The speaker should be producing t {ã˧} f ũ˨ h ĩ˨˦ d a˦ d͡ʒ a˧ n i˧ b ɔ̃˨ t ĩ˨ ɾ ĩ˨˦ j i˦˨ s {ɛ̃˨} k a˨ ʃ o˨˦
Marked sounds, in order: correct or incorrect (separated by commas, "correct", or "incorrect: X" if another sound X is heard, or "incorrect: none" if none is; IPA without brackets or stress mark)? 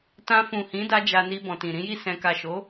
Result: correct, correct